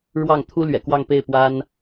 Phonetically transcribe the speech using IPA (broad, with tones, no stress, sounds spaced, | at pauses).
ɻ w ɑ˥˩ ŋ t̪ʰ u˥ l ɥ ɛ̰˨˩ k w ɑ˥˧ ŋ p e˥˩ ɪ̯ p w a˥ n